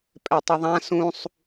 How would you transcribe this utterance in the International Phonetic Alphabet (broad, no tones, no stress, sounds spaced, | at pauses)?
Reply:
pʼ ɛ tˤ ɯ ðˤ ã s ũ sˤ